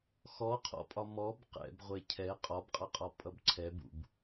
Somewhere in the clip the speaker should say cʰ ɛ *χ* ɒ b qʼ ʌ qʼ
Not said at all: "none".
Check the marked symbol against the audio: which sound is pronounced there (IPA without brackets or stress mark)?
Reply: qʼ